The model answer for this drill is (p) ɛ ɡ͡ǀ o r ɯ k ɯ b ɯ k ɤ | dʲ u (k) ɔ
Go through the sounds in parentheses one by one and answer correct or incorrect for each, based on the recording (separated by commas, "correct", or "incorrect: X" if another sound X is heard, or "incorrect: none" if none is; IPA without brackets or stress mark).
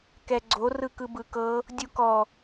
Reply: incorrect: k, correct